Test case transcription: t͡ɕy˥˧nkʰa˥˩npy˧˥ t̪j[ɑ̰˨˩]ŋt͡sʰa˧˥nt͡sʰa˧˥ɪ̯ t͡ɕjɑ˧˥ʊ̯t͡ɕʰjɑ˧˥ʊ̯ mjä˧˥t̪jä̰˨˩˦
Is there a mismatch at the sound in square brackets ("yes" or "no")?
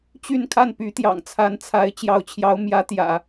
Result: no